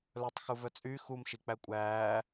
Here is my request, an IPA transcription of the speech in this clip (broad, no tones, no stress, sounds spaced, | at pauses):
l œ tˤ x u v œ t͡sʼ y x u m ʃ i k͡p æ kʷʼ æː